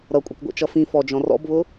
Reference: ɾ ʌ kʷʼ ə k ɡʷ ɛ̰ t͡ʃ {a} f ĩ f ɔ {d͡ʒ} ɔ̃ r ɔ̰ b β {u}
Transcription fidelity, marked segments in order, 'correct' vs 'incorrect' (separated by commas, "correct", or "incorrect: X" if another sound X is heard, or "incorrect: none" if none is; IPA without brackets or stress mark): incorrect: ʌ, correct, incorrect: ʊ